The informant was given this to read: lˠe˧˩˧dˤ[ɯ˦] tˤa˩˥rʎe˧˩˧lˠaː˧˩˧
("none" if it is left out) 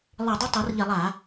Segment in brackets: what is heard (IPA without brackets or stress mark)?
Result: ɯ˦